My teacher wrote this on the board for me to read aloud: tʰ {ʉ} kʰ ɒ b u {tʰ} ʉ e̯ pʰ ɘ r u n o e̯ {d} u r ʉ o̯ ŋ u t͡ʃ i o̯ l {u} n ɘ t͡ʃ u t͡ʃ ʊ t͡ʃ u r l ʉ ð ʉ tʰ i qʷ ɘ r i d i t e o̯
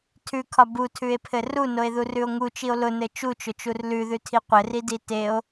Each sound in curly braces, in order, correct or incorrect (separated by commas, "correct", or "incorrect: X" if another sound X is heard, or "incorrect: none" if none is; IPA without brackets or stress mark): correct, correct, incorrect: ð, incorrect: ʊ